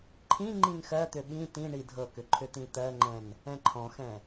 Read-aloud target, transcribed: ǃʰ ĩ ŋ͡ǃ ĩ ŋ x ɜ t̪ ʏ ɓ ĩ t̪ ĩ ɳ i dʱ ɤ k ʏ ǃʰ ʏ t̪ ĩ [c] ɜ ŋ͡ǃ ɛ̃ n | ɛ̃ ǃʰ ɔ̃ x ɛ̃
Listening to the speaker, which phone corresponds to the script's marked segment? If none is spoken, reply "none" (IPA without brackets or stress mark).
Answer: t̪